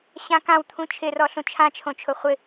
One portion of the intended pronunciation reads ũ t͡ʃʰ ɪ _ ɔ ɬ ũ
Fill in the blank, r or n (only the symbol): r